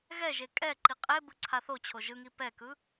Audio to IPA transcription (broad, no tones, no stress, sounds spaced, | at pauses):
ɣ ɛ ʒ e kʼ ɛ ǃ i qʼ e b ɯ ǀʰ a θ o t͡ɕʰ o ʒ ɯ ŋ i p ɛ k ɯ